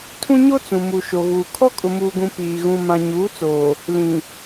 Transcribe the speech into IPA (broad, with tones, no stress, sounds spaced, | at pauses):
tʰ ũ˦ ɲ o˦ t͡s ũ˨ m u˨ ʃ o˨ ɣ uː˨ kʰ ɔ˦ kʼ ʊ˨ m uː˨ ɡ ũ˨ p iː˨ ɣ ũ˨ m ã˨ ɲ uː˨˦ t͡s oː˨ | l ĩ˨